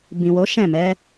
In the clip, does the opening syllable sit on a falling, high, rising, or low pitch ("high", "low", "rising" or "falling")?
low